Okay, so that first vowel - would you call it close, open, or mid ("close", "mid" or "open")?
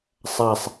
open